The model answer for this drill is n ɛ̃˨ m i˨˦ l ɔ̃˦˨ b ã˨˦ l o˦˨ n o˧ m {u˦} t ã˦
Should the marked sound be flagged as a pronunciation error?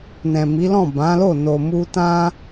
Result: no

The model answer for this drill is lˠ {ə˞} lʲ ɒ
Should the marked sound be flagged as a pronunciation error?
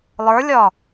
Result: no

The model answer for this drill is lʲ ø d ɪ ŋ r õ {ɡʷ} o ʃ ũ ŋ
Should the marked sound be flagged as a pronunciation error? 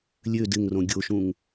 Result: yes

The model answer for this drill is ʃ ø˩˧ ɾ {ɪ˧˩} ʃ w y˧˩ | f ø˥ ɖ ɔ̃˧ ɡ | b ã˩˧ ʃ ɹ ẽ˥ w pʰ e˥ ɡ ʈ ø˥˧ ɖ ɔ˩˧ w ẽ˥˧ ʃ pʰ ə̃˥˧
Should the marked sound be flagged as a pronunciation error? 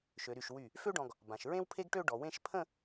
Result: yes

